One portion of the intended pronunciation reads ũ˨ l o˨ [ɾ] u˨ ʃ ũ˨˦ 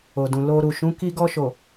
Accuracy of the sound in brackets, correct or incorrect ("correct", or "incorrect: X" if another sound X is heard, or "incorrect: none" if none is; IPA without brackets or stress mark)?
correct